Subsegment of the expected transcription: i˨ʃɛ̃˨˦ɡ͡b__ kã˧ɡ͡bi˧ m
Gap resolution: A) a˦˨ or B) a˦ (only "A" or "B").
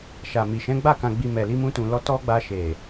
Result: A